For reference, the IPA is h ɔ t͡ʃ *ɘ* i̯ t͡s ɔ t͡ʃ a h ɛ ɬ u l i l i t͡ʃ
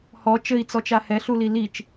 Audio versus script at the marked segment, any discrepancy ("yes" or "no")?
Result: no